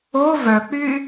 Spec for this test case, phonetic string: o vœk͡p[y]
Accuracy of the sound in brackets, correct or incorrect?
correct